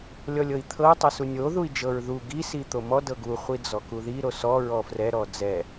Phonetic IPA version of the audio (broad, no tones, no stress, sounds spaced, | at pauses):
lʲ ɔ lʲ ɤ i̯ t̪ʰ ɤ u̯ tˤ ɤ s u nʲ o ð u i̯ d͡ʒ ɤ ɹ ð u ɡ i s i t̪ o m ɔ d ɤ ɡ u χʷ i d͡z ɔ k u ð i ɾ o s ɔ ɹ ɔ f r ɛ ɾ ɔ d͡z ɛ